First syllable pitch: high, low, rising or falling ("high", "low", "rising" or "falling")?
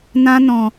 high